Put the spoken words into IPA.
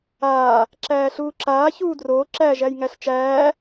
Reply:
aː | ǁ æː ɬ uː ǁ aː ç uː d r oː ǁ æ ʒ æ j ŋ æ ɬ t͡ʃ æː

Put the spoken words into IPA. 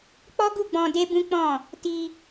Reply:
k͡p ɔ˦ ɡ u˦˨ ɡ͡b ɔ̃˧ d e˦ b ũ˦ k͡p ɔ̃˦˨ | t i˧

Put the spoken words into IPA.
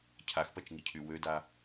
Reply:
cʰ a x p ɐ t͡ʃ ŋ i cʰ y w ø d a

